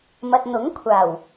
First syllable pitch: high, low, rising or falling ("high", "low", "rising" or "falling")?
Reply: low